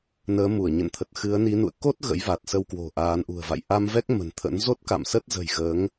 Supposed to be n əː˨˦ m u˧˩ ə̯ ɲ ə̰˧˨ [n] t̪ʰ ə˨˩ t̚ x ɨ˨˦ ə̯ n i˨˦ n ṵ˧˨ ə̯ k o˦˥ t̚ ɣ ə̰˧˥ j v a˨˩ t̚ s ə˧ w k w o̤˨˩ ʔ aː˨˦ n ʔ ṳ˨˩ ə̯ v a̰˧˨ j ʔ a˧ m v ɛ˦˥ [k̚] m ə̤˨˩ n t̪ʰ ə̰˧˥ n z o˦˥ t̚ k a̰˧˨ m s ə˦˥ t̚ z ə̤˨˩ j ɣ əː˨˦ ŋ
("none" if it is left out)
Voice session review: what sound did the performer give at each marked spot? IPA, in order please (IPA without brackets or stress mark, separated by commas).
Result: n, k̚